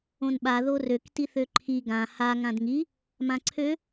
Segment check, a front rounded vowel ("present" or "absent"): present